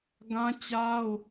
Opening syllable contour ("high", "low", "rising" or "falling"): high